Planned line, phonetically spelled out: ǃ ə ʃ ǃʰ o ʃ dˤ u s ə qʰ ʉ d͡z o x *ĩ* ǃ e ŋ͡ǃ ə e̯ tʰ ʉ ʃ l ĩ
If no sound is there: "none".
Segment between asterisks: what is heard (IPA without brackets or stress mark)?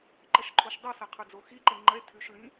i